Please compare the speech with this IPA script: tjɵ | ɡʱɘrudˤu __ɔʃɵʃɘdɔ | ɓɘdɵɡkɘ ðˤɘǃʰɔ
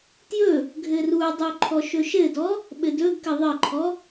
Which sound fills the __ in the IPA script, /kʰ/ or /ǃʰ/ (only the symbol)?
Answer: ǃʰ